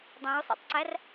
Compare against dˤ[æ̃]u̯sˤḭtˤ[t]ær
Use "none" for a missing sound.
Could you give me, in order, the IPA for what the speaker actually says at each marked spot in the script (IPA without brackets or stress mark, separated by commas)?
æ̃, ǀ